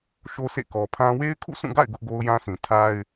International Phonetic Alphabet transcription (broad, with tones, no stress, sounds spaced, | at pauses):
ʃ o˦ sʰ ḛ˦˨ k ɔ˨ pʰ ã˦ w e˦ ɪ̯ kʰ ṵ˦˨ sʰ ũ˦˨ ɡ a̰˦˨ ɪ̯ ɡ ʊ˦ ʔ ɡ o˦ ʊ̯ j ã˦ sʰ ĩ˨ tʰ a˦ ɪ̯